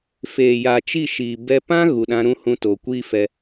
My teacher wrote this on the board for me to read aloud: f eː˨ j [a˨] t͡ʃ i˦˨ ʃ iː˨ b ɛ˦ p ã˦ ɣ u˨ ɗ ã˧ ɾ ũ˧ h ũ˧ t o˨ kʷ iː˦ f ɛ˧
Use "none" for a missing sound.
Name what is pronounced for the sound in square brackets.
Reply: a˨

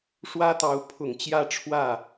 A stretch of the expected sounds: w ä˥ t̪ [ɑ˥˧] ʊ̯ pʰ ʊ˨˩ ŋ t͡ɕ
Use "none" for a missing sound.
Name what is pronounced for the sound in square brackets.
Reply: ɑ˧˥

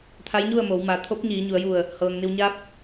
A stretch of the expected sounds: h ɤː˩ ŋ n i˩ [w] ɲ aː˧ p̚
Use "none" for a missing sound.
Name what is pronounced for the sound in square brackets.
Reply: w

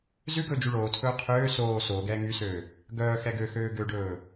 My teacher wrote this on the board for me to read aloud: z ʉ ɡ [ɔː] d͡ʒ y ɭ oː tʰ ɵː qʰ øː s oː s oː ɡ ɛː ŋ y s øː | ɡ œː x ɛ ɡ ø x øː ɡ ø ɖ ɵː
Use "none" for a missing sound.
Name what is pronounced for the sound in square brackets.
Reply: ɵː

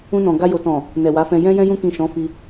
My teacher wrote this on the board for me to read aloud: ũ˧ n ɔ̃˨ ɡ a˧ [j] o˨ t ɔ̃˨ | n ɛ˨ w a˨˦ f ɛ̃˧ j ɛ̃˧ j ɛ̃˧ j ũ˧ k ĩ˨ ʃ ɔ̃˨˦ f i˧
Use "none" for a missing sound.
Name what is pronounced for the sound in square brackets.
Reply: j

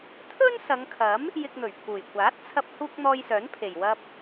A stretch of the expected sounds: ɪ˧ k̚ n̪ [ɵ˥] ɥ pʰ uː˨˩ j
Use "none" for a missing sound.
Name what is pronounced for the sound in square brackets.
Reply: ɵ˨˩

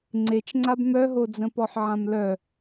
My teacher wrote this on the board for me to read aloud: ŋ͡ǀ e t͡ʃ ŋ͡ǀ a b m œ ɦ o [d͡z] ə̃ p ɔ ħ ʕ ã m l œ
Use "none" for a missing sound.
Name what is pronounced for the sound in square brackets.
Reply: d͡z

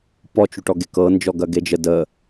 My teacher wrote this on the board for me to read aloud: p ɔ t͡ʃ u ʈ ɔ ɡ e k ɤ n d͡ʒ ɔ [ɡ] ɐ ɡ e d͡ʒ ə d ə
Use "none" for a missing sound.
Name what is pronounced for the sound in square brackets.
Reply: ɡ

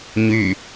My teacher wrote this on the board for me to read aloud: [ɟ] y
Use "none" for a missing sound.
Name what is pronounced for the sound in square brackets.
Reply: ɲ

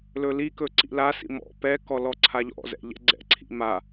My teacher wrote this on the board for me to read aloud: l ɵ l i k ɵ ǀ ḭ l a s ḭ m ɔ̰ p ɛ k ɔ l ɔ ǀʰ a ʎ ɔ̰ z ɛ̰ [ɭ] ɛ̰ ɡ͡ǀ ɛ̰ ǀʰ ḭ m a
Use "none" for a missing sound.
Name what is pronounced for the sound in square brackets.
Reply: ʎ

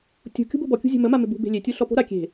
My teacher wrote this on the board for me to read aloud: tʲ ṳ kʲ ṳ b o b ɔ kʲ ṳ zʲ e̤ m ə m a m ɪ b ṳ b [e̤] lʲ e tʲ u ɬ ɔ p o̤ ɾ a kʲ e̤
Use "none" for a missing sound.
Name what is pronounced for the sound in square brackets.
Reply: e̤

